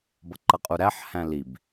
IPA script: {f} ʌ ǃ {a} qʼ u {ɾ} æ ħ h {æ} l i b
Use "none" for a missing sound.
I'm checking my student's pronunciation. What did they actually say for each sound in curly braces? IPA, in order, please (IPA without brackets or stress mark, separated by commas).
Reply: b, ʌ, ɾ, æ̃